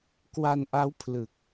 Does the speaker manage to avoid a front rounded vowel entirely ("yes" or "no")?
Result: yes